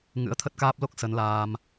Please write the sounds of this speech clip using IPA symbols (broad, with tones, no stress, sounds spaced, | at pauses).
ŋ ɨ̰˧˥ ə̯ t̪ʰ ə˦˥ t̚ k aː˦˥ p̚ l o˦˥ k̚ s ə˨˦ n l aː˧ m